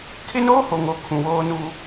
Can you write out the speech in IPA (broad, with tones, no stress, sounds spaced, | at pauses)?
kʰ ɪ˦ n oː˦ h o˨ ŋ o˨ kʰ ũ˨ w oː˦ n u˦